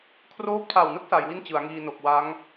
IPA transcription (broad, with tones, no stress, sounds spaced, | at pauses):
kʰ r oː˦˥ p̚ tʰ a˨˩ w n ɯ˦˥ k̚ s a˩˦ j w i˥˩ n t͡ɕ ɯ˩˦ a̯ ŋ iː˧ n o˨˩ k̚ w a˦˥ ŋ